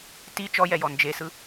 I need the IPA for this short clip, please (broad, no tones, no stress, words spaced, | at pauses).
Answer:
ti t͡ʃɔjɛjɔ nd͡ʒesɯ